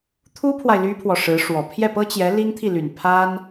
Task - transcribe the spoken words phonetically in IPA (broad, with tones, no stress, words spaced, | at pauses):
t̪ʰu˥pʰwa˨ɪ̯ ly˥pʰwɔ˨ʂɻ̩˧˥ʂwɔ˨˩ pʰjɛ˥˩pɤ˥t͡ɕjɛ˧˥ li˥ŋt̪ʰi˥˩ly˨˩n pʰa˥n